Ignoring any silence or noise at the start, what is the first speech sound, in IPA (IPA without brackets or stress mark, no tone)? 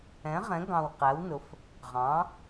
ɛ̃